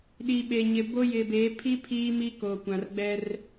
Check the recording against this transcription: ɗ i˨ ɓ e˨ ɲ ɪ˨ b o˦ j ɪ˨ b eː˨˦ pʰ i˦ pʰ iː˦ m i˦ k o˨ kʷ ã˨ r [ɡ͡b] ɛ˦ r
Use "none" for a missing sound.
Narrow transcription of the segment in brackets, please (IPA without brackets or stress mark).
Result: ɡ͡b